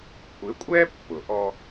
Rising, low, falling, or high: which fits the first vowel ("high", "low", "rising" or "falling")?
rising